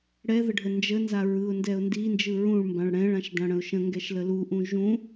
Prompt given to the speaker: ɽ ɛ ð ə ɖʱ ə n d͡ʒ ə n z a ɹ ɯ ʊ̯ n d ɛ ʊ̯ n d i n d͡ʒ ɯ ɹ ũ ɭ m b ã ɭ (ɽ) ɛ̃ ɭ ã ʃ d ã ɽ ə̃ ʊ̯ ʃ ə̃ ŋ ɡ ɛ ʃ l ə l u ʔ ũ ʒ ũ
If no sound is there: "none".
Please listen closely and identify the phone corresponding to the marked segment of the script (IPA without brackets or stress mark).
ɽ